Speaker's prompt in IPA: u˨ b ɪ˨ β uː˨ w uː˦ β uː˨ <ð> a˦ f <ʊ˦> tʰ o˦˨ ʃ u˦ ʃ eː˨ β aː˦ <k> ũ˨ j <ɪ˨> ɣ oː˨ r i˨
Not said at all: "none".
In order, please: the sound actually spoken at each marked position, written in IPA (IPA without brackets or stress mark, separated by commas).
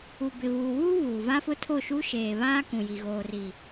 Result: v, ʊ˦, k, i˨